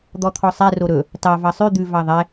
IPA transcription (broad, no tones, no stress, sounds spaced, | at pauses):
d̪ ɔ t̪ʰ ɔ sˤ ɛ r o ɾ ɵ | t ɑ v ɑ sˤ ʉ d̪ ʉ v ɑ ðˤ ɛ